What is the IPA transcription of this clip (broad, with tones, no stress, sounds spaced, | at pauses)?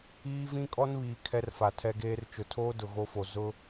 iː˦ v ĩ˦ kʼ ɔ˦ n β iː˨ kʰ ɛ˦ r f a˨ tʰ ɛ˦ ɡ eː˦ r t͡ʃ ʊ˨ tʰ oː˦ d ʊ˨ ɣ o˦ f o˨ z ʊ˦